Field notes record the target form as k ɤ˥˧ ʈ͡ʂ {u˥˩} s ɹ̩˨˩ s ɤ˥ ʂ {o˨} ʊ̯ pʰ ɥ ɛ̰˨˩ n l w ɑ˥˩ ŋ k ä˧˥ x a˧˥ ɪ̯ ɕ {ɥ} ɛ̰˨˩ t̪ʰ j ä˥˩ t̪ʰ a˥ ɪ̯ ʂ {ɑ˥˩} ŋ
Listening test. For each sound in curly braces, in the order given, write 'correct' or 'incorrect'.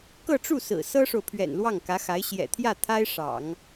correct, correct, incorrect, incorrect

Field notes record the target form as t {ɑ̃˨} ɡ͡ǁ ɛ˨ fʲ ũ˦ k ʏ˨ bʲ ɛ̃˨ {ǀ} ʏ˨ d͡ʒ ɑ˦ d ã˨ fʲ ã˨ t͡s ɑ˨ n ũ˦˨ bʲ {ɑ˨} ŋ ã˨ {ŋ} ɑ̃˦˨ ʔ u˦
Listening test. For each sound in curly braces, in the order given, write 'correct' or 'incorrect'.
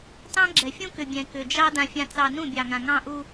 incorrect, incorrect, correct, correct

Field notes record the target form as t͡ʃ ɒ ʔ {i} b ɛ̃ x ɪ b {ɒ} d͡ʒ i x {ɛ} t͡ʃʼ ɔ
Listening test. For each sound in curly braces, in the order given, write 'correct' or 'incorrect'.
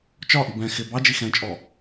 correct, incorrect, incorrect

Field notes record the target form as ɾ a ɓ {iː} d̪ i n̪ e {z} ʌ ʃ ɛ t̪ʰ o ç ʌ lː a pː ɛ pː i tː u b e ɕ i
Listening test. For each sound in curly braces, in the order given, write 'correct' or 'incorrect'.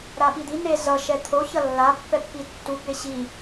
incorrect, correct

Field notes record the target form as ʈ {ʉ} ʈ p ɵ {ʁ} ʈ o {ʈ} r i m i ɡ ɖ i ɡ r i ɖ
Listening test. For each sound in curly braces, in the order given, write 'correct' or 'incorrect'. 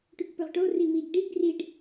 correct, correct, incorrect

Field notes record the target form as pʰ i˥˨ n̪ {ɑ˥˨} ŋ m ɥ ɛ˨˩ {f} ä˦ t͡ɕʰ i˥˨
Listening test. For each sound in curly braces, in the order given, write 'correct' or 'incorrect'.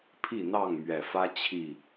correct, correct

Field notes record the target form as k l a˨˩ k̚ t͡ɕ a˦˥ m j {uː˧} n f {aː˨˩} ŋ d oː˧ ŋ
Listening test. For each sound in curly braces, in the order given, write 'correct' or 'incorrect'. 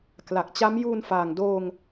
correct, correct

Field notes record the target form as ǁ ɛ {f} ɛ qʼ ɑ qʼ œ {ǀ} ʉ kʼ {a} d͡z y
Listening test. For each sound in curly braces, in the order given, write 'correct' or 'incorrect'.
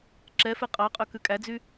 correct, incorrect, incorrect

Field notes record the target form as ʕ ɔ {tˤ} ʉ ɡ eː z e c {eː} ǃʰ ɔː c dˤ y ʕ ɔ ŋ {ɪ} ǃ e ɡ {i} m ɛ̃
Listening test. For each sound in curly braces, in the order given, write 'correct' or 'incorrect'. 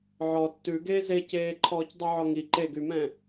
incorrect, correct, incorrect, incorrect

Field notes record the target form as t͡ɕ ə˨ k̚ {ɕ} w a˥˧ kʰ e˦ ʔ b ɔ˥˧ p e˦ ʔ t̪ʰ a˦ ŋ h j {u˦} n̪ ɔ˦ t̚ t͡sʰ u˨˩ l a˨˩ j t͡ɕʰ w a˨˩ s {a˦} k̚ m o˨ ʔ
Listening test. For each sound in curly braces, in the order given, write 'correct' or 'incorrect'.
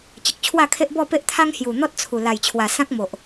incorrect, incorrect, incorrect

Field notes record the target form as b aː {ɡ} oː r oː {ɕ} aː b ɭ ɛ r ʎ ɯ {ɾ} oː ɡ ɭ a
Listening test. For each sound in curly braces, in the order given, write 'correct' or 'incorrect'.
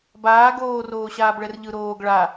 correct, correct, correct

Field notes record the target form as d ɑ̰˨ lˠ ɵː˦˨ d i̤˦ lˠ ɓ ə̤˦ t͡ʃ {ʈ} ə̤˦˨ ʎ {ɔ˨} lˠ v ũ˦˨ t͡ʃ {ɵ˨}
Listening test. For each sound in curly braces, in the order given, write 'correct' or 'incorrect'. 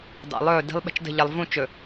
incorrect, incorrect, correct

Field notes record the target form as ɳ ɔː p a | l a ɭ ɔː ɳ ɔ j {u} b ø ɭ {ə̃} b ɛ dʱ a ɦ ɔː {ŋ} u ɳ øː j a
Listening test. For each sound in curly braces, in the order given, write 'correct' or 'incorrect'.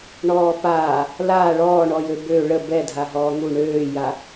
incorrect, incorrect, correct

